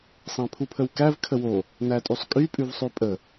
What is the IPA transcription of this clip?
sˤ æ̃ pʰ u pʰ ə w k æ v kʰ ə w o | n æ tʼ y sˤ kʼ y pʼ ʉ v sˤ ʉ pʼ ə

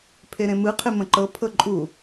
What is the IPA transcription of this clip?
pʰ e ɾ ẽ m ɯ qʰ e m ə̃ ǃ ɤ pʰ ɤ ǃʼ u

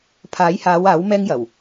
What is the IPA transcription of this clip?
pʰ aː˨˥ j h aː˨˧ w aː˨˥ w m ɛː˥ ŋ j ɐ˨˩ w

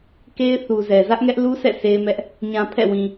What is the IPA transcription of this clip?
k e˦ ɪ̯ θ u˨ z ɛ˨ z ä˦ ʔ ŋ ɛ˦ ʔ l u˦ sʰ ɛ̰˦˨ s e˦ ɪ̯ m ɛ˦ ʔ | ɲ ã˨ pʰ ɛ̰˦˨ w ĩ˨

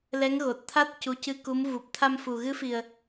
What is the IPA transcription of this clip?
l ɛ˧˥ ŋ ɣ o˨˩ t̚ t̪ʰ a˦˥ t̚ c u˧˥ c ɨ˧ k u˧˥ m v u˨˩ p̚ t̪ʰ a˧ m f u˨˩ ɣ ɨ˧˥ f i˨˩ ə̯

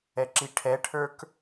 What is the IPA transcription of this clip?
ɛ ǁ i ʈʰ ɛ ʈʰ ə˞ k

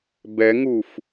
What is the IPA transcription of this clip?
b ɛ ŋ u f

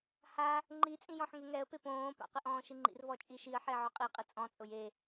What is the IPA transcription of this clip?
h a | ŋ͡ǃ i t͡sʼ ĩ j ɔ̃ ħ ŋ e ŋ ɛ ə̯ p e p õː p a̰ q ɪ ʔ ɔ̃ː ʃ i ŋ͡ǃ ḭ r v ɔ t͡ʃʼ i ʃ i ə̯ ħ e ʕ ʊ qʼ i qʼ ɪ t͡sʼ ɔ̃ t͡sʼ ʊ j e

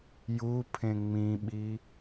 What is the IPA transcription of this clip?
j u pʰ ẽ ŋ͡m ĩ ɓ i

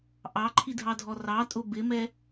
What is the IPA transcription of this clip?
ʔ ɑ ǃʰ i dʱ ɑ dʱ ɔ r ɑ tʼ ʊ b ɪ m ɛ

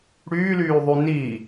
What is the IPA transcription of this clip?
ɽ yː l yː ðˤ y n i

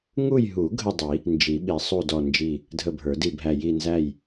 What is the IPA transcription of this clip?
ŋ u˦˨ j ɦ u˨˩˦ ɡʱ ə˦˨ dˤ i˨˩˦ | n d͡ʒ i˨˩˦ ɓ i˨˩˦ sˤ u˦˨ d ɔ˦˨ n d͡ʒ i˦˨ | dʱ ə˦˨ bʱ ə˞˨˩˦ d i˦˨ bʱ æ˦˨ j i˦˨ n z æ˦˨ j

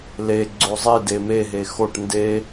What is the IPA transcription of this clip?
l e ɡ͡ǀ o zˤ i d e m e ɦ e x o ʈ n d e

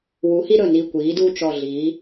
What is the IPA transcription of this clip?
w u˩˧ h i˧ ɾ ɵ˨˩ n i˨˩ kʷ iː˩˧ d uː˧ t͡ʃ ɔ˨˩ ɮ iː˩˧

